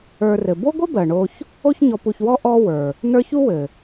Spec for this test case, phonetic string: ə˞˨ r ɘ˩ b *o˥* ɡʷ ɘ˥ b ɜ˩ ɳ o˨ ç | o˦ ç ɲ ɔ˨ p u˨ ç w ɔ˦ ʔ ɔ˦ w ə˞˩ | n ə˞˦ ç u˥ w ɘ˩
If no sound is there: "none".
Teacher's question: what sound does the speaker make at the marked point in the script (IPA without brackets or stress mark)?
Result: o˥